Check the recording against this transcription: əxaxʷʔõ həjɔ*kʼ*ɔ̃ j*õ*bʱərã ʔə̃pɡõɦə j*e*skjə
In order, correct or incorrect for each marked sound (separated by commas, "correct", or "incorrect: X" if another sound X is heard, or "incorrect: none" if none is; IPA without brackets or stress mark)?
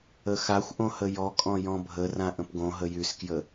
correct, incorrect: ɔ̃, incorrect: y